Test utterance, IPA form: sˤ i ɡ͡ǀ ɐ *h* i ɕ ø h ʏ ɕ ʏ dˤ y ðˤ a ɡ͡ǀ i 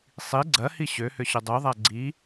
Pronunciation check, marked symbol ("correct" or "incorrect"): correct